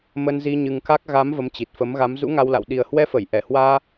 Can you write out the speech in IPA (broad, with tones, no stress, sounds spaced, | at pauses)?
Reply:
m ə˧ n z i˧ ɲ ɨ˧ ŋ k a˦˥ k̚ ɣ a˨˦ m v ə˨˦ m t͡ɕ i˨˩ t̚ f ə˨˦ m ɣ a˨˦ m z ṵ˧˥ ŋ a˧ w l a̰˧˨ w ɗ i˨˩ ə̯ h w ɛ˧ f ə˧˩ j ʔ ɛ˧˩ h w aː˧